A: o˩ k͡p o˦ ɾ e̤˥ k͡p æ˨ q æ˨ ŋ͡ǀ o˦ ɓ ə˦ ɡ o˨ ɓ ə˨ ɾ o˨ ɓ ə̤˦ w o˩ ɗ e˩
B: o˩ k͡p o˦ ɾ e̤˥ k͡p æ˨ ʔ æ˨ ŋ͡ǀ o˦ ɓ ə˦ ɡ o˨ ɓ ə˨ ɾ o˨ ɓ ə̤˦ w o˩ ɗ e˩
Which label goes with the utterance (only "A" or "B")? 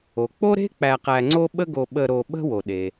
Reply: A